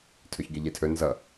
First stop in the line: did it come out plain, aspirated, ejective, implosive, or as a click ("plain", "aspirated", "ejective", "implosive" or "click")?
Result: aspirated